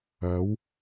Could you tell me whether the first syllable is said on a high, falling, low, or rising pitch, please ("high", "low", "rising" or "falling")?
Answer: rising